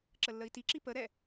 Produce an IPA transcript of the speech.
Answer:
ǁəlːəi̯tiǁi pəɾɛ

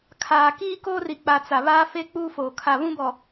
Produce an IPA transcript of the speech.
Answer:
kʰaː˨ kiː˦koː˦ri˨k͡pa˨ t͡sa˨βaː˦ fe˦ k͡puː˦foː˨ kʰa˨ βũ˦bɔ˨

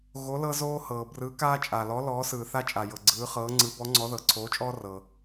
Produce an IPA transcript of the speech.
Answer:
ɣo˨˥lɤ˦zoː˦hɤː˩ brɯ˨˥ kaː˦t͡ʃʼa˩lɔ˨˥ lɔː˨˥ sɯː˩θa˦t͡ʃʼa˩ jɤ˩ ɡ͡ǀɯː˨˥χɤː˨˥ ŋ͡ǀɯ˨˥bɔ˨˥ŋ͡ǀɔ˨˥ðɤ˩ ǀʰoː˨˥t͡ʃʼɔː˦rɤ˩

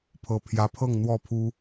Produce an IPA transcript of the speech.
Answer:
pʰɤ˨˩ pʰjä˨˦pʰɤ˥˨ŋ n̪wɔ˥˨pʰu˦

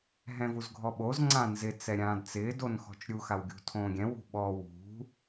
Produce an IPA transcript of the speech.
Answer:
ɦɛ̃vuzɡʱɔɓoz ŋ͡ǀãnzɪ t͡sɛɾʲãːdt͡sɪː donxɔ̤t͡ʃɾʲu xawɡʲṳtʰõːɡʲɛ̃ wṳɓɔ wṳ

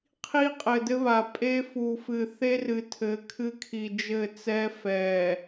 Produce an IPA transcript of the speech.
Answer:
qʰi˦qʼɘ˨dɘ˦βa˨ pʼe˦fu˨ fɨ˨ θe˦rɨ˨ tʰɘ˨˦kʰɨ˦kʰi˨ d͡ʒɘ˦˨t͡sɛ˦ fɛ˨

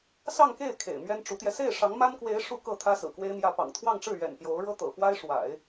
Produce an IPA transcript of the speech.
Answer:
sɑ˥˧ŋke˥˩ɪ̯ kʰḛ˨˩ɪ̯mɥɛ˥nʈ͡ʂu˧˥t̪jɛ˧ se˥˩ɪ̯ʂɑ˧˥ŋma˥nkwe˧˥ɪ̯ ʂu˥˧kɤ˥˩ t̪ʰä˥sɹ̩˨˩kwe˥ɪ̯mjä˥˩ pɑ̰˨˩ŋt̪ʰwɑ˥˧ŋʈ͡ʂɻ̩˥˩ ɥɛ̰˨˩npjo˧˥ʊ̯ɻɤ˥t̪ɤ̰˨˩ fwa˥ɪ̯ʂwa̰˨˩˦ɪ̯

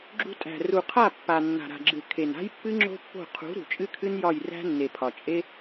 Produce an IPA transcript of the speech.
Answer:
ɡ͡ǁṳ˧tʼæ̤˨ ru˨qʰa˦˨ pːa˨ nːa̤˨ɾa̤˨ɡ͡ǁɨ˨ kʰe˨na̤˦jpːɨ˦ ŋ͡ǁo̤˦pːo̤˦˨ qʰṳ˨˦ ɾṳ˨t͡ʃʼɨ˦kʰɨ˦n jɒ˦˨jræ̤˦nːe˨ pʰɒ˨ t͡ʃʼe˦

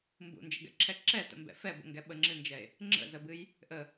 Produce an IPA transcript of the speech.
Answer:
mbṵnd͡ʒə̰ɡɛ̰ǁʰɛ ǁɛtə̰mbɛ̰ fɛbə̰ŋɡɛ ɓəŋ͡ǁɨnd͡ʒɛe̯ | ŋ͡ǁə̰zəbɨj | ʔə

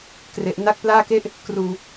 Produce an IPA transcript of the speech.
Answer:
kre˨˩ʔ na˥˩k̚ plaː˥˩ke˥˩ʔ | kruː˧

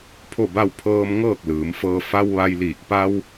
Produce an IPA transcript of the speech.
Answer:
pʰo˥˨ba˥˨w pʰɤː˧m ŋɤː˥˨k̚lɯː˩˧mfɤː˧ fa˧w ʋa˧jliː˧˩k̚ pa˧w

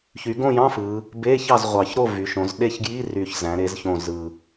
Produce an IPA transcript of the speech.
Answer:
çy˩˧ɡõ˥˨jɑ̃˧˥˧ fɯ˩˧ | be˧˥˧çɑ˥˨zʁʷɑ˨˩çɾo˥˨ vy˩˧ʃõ˩˧z ɗe˥˨ç ɡji˧˥˧ry˨˩ç zæ̃˩˧ɾe˩˧zçõ˨˩ zɯ˨˩

